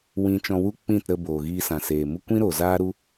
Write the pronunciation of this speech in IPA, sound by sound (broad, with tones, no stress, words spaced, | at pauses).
wĩ˧t͡ʃɔ̃˧wu˦ k͡pĩ˦˨tɾə˧ boː˨ ɣiː˧sã˨seː˨mu˦ kʷĩ˦ ɾo˨ zaː˦ɾu˦